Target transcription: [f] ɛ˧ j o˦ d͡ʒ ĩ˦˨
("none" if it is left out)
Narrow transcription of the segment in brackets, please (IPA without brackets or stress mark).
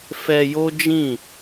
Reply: f